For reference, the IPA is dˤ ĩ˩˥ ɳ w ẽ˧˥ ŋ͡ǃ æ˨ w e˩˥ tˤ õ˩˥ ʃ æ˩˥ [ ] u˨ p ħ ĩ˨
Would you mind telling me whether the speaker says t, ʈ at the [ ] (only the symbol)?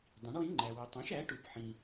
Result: ʈ